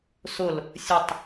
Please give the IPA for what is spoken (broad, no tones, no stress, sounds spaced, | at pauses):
s ʊ l | sʲ ə tˤ